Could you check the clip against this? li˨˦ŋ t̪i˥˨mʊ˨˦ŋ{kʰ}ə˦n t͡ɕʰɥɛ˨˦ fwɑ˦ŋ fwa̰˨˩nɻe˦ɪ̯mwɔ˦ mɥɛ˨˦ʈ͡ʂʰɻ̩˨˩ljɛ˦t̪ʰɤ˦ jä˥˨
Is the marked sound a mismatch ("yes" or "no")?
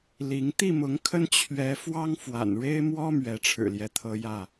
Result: no